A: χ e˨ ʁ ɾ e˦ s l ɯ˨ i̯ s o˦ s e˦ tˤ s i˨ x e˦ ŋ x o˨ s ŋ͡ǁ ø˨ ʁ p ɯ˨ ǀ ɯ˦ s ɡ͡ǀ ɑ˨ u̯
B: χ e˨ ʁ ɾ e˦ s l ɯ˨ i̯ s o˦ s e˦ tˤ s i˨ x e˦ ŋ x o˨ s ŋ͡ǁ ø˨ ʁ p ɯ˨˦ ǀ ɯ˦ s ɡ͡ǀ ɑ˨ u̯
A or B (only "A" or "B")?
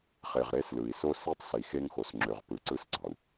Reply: B